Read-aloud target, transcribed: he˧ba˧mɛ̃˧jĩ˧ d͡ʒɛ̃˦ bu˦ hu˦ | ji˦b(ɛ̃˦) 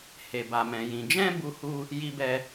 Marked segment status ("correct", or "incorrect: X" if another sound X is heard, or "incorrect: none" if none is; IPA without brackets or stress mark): incorrect: ɛ˦